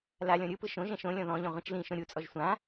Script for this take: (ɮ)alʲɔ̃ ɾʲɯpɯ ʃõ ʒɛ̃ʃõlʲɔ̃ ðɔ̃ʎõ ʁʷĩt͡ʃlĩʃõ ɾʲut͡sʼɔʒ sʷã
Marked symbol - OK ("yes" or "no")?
no